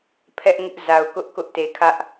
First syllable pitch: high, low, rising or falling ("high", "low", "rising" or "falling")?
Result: high